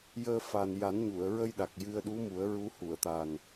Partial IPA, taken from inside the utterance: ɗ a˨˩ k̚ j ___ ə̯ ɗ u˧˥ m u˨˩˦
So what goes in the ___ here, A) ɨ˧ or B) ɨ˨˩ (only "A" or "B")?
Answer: A